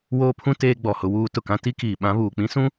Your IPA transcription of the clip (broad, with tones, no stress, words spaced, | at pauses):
woː˦pʰũ˦ teː˦ɡ͡bɔ˨hʊ˦wuː˦ tʊ˨kã˦ ti˦kiː˨ɓã˦ βuː˨k͡pĩ˦sũ˦